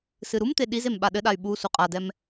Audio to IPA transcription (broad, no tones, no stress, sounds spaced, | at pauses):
s ɨ ɾ u m t̪ e ɗ i z e m ɓ a ɗ ɘ ɗ a y̯ ɓ u s u qʼ a d ɛ m